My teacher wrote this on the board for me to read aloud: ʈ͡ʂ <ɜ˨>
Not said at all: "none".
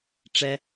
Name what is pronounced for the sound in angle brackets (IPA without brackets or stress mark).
ɛ˨